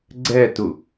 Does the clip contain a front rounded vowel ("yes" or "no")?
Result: no